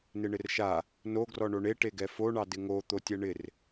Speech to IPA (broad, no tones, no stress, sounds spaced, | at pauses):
n ɪ ɳ ɪ r ʃ a | n o ɡ r ɔ ɳ o ɳ e ʈ e ɡ ɛ f o ɳ ɑ d ɪ ŋ o t̪ o tʲ ɛ ɳ ɪ r